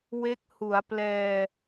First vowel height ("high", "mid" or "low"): mid